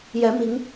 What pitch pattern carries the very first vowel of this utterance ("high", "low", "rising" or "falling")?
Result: rising